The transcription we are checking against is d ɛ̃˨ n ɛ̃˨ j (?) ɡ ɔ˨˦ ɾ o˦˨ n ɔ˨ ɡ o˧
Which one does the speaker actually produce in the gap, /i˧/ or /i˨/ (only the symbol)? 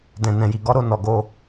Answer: i˨